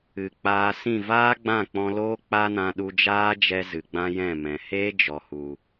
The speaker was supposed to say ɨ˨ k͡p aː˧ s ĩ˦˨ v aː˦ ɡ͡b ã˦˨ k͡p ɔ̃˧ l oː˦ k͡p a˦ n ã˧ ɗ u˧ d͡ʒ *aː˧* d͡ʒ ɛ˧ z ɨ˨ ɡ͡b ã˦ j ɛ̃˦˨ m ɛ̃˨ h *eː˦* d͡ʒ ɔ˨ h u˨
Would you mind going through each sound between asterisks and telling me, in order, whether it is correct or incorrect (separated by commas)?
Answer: incorrect, correct